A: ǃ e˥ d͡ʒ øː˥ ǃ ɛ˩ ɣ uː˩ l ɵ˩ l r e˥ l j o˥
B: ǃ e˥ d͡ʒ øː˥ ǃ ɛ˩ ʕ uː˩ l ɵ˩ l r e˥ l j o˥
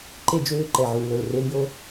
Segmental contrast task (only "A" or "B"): B